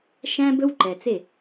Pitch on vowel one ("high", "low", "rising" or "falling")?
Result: high